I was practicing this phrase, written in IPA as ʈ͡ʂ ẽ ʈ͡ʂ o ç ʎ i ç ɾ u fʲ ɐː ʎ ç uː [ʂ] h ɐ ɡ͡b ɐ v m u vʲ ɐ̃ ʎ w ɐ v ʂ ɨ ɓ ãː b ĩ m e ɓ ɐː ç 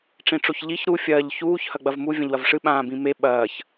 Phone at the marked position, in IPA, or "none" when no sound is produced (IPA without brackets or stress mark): ç